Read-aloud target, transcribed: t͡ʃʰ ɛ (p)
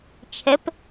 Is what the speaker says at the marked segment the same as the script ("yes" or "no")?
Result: yes